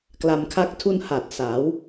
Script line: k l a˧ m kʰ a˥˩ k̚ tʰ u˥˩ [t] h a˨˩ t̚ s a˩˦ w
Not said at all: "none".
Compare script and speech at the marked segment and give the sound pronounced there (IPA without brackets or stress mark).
n